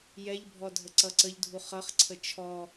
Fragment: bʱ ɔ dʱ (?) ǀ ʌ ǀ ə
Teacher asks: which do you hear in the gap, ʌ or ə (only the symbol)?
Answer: ə